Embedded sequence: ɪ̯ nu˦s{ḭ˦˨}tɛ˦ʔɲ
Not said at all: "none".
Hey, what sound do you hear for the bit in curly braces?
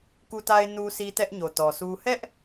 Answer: i˦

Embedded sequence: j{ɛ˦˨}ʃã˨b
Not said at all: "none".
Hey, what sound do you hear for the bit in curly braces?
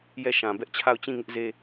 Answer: ɛ˦˨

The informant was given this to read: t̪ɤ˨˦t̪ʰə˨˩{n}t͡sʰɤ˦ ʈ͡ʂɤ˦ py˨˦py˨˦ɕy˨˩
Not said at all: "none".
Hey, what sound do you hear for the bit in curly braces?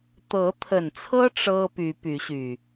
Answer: n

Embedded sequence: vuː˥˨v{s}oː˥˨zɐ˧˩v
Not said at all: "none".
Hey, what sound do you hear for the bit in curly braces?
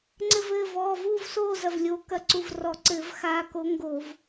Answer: s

